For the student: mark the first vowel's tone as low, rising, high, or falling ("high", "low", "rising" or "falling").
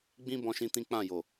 high